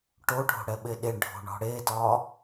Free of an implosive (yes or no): no